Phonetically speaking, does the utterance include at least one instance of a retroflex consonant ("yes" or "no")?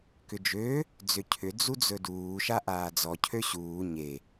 no